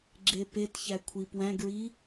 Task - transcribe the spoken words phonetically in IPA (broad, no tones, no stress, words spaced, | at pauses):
ɡ͡ǁepetçæ kʷʰipwæ̃ɡɹi